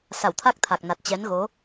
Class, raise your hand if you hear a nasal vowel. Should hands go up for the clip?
no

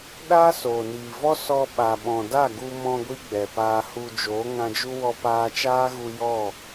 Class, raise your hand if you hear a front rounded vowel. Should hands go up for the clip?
no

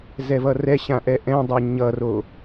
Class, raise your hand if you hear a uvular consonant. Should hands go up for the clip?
no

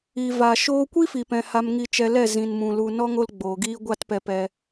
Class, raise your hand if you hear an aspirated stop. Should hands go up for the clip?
no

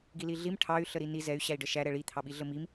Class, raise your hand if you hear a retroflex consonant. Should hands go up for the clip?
yes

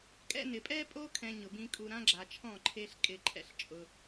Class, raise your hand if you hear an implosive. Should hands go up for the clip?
no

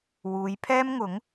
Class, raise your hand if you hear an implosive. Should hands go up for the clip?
no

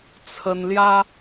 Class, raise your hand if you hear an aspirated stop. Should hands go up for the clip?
yes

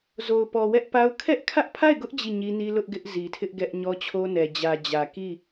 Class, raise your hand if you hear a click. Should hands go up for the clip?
no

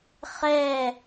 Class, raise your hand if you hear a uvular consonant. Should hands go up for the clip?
yes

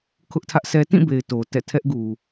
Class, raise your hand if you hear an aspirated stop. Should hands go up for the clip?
yes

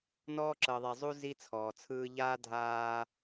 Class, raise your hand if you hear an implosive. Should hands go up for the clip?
no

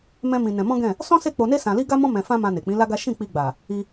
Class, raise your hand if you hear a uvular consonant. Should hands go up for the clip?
no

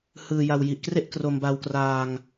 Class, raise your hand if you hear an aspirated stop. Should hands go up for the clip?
no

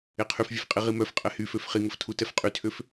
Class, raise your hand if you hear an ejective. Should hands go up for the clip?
yes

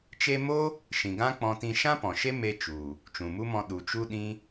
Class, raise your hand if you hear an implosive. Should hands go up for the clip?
yes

